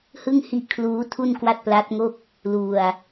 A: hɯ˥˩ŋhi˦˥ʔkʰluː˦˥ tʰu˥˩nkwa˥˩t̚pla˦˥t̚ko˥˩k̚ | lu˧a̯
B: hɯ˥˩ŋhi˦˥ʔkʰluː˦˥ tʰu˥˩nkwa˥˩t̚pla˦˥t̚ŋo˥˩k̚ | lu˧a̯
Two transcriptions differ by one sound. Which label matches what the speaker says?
B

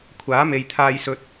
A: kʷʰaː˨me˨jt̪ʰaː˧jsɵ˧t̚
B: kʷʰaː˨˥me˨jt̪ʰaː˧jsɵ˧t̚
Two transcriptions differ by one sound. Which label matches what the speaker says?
B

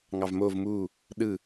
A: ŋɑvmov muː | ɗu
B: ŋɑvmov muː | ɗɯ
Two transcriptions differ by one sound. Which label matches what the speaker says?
B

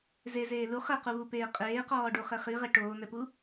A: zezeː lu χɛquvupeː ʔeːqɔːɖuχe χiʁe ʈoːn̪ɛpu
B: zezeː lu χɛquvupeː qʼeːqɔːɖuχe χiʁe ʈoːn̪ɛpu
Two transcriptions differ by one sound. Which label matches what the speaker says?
B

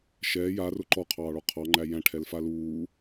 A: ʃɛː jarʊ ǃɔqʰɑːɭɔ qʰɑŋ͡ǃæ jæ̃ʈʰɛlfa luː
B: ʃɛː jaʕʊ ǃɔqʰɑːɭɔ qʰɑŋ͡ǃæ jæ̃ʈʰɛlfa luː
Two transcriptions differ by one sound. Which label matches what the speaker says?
A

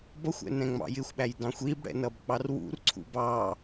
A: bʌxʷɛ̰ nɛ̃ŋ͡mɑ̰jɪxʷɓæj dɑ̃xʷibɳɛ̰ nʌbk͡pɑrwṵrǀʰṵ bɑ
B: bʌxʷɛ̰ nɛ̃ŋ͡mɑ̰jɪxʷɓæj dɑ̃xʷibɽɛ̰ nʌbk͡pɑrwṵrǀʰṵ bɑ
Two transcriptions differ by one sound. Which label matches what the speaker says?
B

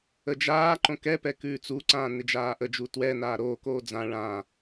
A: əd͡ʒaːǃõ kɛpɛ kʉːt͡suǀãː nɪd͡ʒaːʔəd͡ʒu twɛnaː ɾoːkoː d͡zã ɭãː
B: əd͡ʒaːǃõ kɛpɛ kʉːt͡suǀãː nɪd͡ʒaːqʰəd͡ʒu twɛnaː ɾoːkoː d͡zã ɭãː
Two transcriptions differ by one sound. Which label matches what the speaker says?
A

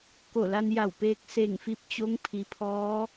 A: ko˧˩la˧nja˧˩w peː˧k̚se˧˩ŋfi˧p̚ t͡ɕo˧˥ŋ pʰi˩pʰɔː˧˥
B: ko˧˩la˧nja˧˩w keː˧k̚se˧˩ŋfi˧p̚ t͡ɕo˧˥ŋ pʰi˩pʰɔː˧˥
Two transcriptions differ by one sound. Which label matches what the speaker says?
A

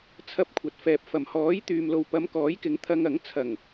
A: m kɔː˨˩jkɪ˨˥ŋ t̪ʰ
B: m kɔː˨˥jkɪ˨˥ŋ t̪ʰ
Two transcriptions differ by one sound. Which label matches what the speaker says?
B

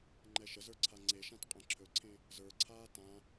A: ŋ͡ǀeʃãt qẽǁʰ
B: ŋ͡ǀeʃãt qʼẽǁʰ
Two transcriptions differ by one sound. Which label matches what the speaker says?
B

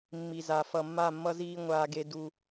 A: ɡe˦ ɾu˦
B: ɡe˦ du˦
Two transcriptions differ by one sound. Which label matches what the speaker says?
B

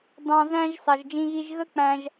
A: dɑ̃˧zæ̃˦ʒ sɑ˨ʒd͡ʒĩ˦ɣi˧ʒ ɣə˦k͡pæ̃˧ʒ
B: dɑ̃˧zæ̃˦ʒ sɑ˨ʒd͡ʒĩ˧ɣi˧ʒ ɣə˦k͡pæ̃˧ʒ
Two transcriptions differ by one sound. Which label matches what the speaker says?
B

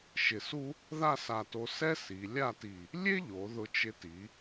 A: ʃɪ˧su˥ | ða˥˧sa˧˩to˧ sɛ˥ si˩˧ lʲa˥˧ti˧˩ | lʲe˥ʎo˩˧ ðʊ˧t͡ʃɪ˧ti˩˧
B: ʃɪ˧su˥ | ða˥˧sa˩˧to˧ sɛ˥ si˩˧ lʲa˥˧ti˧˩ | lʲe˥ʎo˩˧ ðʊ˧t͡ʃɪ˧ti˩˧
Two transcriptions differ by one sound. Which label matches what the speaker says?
A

